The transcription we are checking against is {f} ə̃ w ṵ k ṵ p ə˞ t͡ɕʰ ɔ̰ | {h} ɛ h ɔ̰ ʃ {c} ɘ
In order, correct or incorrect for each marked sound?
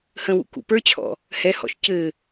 incorrect: h, correct, correct

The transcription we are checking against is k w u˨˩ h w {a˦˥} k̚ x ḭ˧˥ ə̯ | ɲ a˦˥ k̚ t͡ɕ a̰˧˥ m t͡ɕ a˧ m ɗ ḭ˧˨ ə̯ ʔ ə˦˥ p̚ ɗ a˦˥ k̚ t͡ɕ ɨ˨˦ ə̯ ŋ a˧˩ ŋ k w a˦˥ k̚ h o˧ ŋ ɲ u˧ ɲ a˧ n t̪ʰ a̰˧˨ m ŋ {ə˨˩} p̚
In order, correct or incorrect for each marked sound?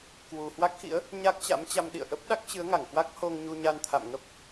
correct, incorrect: ə˦˥

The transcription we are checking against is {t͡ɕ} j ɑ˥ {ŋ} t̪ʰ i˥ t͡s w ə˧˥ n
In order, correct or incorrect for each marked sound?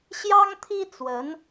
incorrect: ɕ, correct

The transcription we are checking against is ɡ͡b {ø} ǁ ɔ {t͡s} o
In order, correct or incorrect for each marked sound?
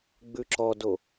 incorrect: ʉ, incorrect: d

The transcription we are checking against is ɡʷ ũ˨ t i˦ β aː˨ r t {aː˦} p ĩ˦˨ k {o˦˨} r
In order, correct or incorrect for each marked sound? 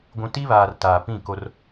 incorrect: aː˨, incorrect: o˦

